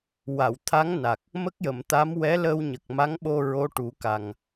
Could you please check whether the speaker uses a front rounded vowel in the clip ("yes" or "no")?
no